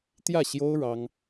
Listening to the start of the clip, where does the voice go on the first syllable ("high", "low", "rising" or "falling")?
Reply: falling